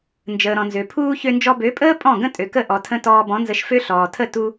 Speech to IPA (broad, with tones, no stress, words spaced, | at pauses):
nd͡ʒəː˨ɾɔ̃˨nzø˨pʰuː˦ çø˧nd͡ʒɔ˧bø˨˦pʼəː˦ pʼɔ̃˦˨ɡə̃˦ tʼø˨kə˦˨ ʔɔ˨tʰə̃˧ tɔː˧bɔ̃˨˦nzə˧ʃ fø˦ɬɔː˨ tʰə˦˨tu˧